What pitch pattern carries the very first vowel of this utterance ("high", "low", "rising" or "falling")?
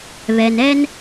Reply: low